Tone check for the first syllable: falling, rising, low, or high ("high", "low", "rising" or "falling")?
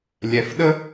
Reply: low